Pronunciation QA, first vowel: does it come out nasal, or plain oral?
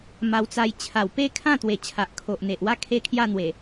oral